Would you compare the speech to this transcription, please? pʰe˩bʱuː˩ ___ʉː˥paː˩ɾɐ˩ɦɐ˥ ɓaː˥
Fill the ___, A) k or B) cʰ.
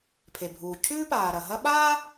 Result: B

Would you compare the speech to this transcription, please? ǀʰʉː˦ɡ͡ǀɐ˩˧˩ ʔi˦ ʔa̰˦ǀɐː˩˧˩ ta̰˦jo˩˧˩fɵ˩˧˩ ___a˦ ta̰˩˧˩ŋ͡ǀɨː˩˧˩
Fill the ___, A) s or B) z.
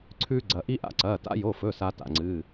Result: A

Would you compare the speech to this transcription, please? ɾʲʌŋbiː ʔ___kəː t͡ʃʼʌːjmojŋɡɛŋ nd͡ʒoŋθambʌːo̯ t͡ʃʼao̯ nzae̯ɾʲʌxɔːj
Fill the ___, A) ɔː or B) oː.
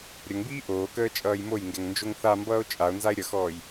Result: B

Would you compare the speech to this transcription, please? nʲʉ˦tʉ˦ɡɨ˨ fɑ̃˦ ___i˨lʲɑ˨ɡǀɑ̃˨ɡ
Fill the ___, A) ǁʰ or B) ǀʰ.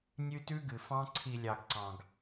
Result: B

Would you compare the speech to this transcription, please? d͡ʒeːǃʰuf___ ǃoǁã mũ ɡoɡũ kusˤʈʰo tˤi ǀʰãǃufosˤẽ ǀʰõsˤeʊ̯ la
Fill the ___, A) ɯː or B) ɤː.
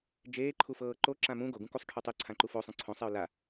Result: B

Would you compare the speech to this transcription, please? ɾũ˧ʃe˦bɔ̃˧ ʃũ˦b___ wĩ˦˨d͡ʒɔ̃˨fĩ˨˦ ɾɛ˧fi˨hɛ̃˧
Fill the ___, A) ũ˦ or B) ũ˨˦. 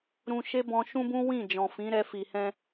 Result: A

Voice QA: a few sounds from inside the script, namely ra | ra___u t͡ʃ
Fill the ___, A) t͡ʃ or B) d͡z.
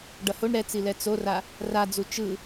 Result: B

